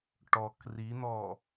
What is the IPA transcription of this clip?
ʈ ɔ k r i n̪ ɔ

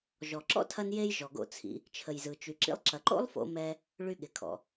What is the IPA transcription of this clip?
ʒ ɔ˩ ǁ ɔ̰˥ tʰ ɐ˧ n j e˧ j ʒ ɔ˩ ɡ o̰˧ t͡sʰ ḭ˧ | t͡ʃʰ ə˩ j z ɯ˩ t͡ʃ y˩ ǁ ḭ˧ lˠ ǁ ɐ˩ ǃ o̰˥ lˠ f o̰˧ m ɛ˧ | ɭ y˧ ɠ ɪ˩ kʰ ɔ̰˩

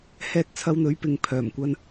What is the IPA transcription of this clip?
h ɛː˧ t̚ t͡sʰ ɐ˧ w n̪ ɵ˨˥ ɥ p ɪ˨ ŋ pʰ œː˨˩ m kʷ ɐ˧ n

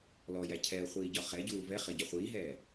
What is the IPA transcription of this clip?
l ɔ j æ cʰ ɛ ə̯ χʷ iː ɟ ɒ χ ɛ ɟ uː v ɛ χ ɪ ɟ ɒ χʷ iː ɦ ɛː

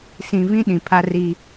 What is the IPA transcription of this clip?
s ĩ˨ v ĩ˦ ɗ ĩ˨ pʰ a˦ r i˦

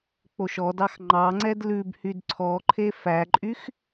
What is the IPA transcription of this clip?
k͡p o ʃ ɔ d ɑ x ŋ͡ǃ ɑ ŋ͡ǀ ɛ d l ʉ b h y d ǀʰ ɔ ǃʰ e f æ ǃʼ y x

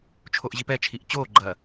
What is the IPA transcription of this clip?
t͡ʃʰ o ʔ ʑ i p ɛ t͡ʃʰ i ʔ t͡ɕ oː ɡ͡ǃ ɐː

